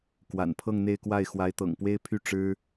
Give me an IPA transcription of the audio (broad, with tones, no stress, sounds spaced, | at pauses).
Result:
k w a̰˨˩ n pʰ ɤ˥˧ ŋ n̪ e˥˧ ɪ̯ k w a˥˩ ɪ̯ x w a˧˥ ɪ̯ t̪ ɤ̰˨˩ ŋ p w e˥ ɪ̯ pʰ y˥˩ ʈ͡ʂ ɻ̩˥